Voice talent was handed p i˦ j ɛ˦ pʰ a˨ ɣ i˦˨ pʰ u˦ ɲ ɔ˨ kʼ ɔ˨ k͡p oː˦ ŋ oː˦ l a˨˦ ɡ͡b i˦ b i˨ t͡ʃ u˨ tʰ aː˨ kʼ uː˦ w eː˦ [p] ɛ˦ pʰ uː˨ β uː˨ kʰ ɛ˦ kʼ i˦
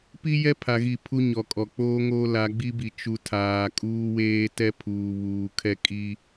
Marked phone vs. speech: incorrect: t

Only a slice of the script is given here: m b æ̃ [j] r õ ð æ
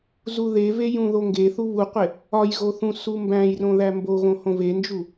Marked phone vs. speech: correct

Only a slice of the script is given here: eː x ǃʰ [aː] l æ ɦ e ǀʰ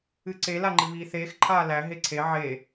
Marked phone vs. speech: correct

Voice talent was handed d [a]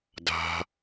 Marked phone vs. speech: incorrect: a̤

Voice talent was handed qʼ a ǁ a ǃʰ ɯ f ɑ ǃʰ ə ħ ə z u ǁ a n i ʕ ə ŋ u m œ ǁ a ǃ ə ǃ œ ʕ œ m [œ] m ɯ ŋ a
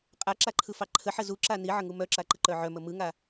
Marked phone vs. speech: incorrect: ə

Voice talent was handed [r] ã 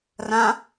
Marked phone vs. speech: correct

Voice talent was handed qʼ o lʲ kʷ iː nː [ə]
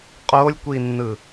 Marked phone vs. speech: incorrect: ɯ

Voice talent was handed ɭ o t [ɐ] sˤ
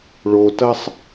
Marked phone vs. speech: correct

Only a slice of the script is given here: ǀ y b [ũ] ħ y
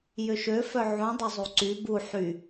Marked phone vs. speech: incorrect: u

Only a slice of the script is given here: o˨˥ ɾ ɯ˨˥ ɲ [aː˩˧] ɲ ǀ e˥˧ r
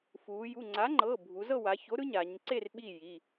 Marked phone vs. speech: correct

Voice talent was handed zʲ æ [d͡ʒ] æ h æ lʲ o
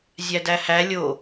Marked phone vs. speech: incorrect: d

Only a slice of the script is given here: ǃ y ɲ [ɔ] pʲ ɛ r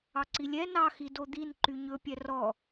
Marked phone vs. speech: incorrect: ɵ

